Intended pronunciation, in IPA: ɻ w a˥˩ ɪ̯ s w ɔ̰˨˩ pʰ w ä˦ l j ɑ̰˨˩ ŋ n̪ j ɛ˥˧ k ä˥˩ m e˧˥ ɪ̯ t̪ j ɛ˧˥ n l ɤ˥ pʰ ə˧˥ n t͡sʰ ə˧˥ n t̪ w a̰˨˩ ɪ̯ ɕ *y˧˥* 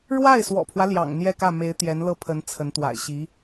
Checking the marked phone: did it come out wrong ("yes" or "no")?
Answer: yes